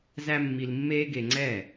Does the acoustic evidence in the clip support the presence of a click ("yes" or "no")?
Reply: yes